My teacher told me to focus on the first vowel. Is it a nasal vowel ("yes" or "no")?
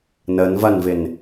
no